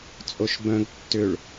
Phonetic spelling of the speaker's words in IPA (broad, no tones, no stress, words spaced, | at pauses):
t͡sʼoʃbœ̃ɡ tːʏɭ